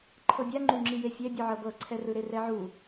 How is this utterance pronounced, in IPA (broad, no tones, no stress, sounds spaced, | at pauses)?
ǃʰ ɤ bʲ a ŋ͡ǃ u ŋ͡ǁ i j e fʲ ɛ bʲ ɯ ʕ ɤ b ɤ ǀʰ ɛ r ɯ ɾ e r ɛ ʕ u